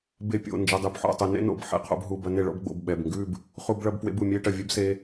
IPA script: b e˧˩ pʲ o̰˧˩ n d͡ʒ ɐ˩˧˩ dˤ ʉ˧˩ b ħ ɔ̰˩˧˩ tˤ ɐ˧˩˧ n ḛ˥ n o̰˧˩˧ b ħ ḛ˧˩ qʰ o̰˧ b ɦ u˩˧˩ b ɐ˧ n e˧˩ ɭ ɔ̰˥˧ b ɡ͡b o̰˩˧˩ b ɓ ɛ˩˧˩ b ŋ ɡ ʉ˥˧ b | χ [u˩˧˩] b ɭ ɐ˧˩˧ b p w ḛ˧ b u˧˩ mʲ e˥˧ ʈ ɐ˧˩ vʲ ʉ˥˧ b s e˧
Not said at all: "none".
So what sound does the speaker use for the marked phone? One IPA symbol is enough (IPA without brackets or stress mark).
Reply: u˧˩˧